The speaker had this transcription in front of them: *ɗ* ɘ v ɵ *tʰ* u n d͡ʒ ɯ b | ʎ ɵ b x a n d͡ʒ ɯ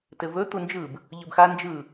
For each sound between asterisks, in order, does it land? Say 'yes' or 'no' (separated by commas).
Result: no, no